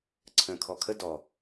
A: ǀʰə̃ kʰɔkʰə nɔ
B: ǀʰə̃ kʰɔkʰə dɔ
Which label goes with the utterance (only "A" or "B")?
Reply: B